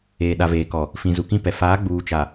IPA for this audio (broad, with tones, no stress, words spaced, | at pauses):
eː˨ɗa˨veː˨kɔ˨ | fĩ˨zu˨kĩ˦pɛ˨ faː˨˦ɡ͡buː˨t͡ʃa˨